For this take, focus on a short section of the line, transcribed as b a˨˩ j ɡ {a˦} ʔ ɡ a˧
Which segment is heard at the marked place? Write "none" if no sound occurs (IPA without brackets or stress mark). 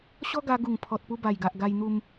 a˨